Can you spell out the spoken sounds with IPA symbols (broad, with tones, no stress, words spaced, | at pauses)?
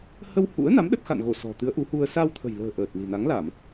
hə˧whṵ˧˥ə̯na˨˦m ɗə˦˥t̚xa̰˧˨nɣo˧˩ sɔ̤˨˩t̪ɨ˨˦ə̯ʔu˨˦hu˧ə̯ sa˧wt̪ʰə̤˨˩jlə̤ː˨˩ ʔəː˨˩t̚li̤˨˩ na˨˦ŋla˧˩˨m